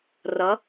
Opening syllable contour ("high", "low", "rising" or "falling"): rising